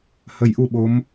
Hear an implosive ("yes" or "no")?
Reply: yes